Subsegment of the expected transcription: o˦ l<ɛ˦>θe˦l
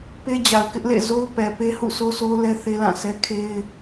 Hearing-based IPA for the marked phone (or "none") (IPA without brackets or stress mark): ɛ˦